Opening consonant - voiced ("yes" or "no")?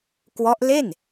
no